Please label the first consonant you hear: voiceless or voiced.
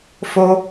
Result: voiceless